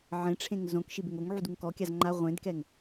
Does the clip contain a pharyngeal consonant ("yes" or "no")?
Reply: yes